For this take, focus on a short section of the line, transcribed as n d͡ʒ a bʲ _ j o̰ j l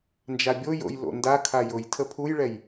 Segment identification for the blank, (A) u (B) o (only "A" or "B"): B